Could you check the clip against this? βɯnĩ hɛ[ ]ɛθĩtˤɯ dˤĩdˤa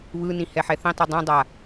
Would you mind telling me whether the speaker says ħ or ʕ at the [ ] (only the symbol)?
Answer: ħ